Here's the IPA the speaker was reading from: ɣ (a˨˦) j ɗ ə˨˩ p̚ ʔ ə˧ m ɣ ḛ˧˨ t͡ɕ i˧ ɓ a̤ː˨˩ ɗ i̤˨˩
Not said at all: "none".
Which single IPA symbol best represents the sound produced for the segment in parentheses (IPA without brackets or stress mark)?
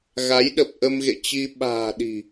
a˨˦